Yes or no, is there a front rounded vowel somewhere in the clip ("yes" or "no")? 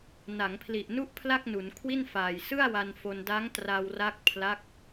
no